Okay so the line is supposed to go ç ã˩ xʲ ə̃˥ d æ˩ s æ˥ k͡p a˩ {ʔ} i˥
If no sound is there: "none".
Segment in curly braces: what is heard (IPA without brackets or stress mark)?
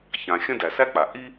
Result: ʔ